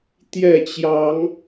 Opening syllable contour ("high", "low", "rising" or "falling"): falling